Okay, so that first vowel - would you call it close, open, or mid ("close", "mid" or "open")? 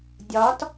open